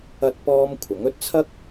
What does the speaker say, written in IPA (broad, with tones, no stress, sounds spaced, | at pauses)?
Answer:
ɐ˥ t̚ p ɔː˥ m kʷʰ ɐ˨˥ ŋ ɵ˧ t̚ t͡sʰ ɐ˥ k̚